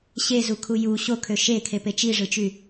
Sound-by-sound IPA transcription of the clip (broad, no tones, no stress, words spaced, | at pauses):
ɕezukʰu ju ɕokʰø ʃekʰepe t͡ʃiʐɯt͡ʃy